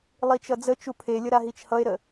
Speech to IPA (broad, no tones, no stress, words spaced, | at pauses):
lˠit͡ʃʌd͡zət͡ʃu pʰelʲə ɾaɦit͡ʃhʌe̯ɾə